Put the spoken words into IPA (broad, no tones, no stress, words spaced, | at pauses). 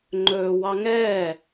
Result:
ŋ͡ǃɵː wɑŋɛː